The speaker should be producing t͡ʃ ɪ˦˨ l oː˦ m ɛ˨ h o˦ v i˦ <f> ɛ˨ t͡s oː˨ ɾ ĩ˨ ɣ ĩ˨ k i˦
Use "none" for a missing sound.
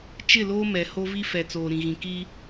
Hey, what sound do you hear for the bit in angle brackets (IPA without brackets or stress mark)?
f